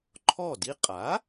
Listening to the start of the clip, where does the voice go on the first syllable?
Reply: falling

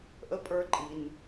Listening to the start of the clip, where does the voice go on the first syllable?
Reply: high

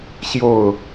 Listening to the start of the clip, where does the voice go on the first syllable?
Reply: falling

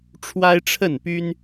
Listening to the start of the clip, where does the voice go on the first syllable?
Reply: high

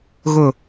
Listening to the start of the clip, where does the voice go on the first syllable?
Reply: falling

